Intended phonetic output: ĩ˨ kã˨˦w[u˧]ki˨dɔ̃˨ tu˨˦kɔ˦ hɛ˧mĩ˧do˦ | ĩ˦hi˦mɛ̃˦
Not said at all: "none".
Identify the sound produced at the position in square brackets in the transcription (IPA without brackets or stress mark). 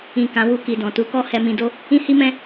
u˧